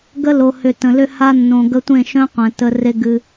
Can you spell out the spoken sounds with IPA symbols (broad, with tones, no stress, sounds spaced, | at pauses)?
ɡ ə˦ l o˨ h ʏ˨ t ə̃˨ l ʏ˧ h a˧ nː õ˨ ɡ ə˧ tʷ ẽ˦˨ ʃ œ̃˦ qʷ ɛ̃˨ t ə˧ r e˧ ɡ ɨ˧